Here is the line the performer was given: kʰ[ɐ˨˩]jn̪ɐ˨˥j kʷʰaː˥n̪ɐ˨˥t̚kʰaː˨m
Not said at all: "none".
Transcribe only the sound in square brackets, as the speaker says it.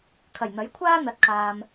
ɐ˨˩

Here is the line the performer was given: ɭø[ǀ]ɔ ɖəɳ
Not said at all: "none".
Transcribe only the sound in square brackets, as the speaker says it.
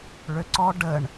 ǀ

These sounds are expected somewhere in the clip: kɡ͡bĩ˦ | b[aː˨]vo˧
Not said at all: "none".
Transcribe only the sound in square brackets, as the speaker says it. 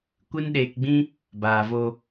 aː˨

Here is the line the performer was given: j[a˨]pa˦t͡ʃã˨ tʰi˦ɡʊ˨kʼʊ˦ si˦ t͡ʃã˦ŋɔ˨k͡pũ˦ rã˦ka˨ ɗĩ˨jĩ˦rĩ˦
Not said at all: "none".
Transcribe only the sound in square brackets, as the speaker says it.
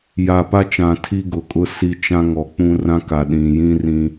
a˨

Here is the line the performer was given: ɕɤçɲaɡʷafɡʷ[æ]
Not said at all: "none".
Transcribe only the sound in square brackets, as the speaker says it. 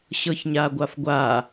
a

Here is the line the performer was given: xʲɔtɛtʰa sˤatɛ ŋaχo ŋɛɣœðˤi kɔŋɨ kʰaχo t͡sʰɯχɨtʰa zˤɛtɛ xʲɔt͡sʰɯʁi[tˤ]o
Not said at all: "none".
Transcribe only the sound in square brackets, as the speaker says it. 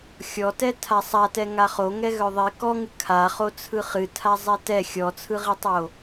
tˤ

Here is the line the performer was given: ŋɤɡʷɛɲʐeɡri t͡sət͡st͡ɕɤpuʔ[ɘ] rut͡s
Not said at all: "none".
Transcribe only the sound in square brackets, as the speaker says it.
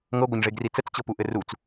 ɘ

